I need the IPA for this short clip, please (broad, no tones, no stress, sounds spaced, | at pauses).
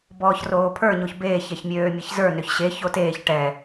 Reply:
b ɔː ç r oː pʰ ə˞ ɲ o ç b eː ç ɛ ç mʲ øː mʲ e ç z ə˞ n ø ç ɕ e ç o t eː ç ʈ ɛ